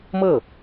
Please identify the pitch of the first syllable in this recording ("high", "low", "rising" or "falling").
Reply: falling